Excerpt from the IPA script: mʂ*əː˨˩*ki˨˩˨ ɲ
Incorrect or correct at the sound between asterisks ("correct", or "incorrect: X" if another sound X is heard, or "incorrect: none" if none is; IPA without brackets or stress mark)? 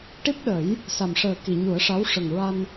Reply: correct